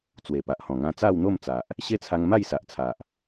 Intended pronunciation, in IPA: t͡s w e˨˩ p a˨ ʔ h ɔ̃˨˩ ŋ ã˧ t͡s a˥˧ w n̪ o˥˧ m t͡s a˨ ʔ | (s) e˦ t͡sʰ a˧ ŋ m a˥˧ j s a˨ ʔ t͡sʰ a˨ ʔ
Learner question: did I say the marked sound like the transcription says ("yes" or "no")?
no